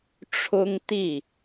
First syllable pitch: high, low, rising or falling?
high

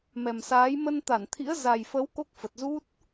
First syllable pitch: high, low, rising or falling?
low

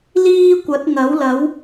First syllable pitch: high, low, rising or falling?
high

